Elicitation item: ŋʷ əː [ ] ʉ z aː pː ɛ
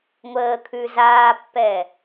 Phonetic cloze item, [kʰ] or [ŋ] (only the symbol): kʰ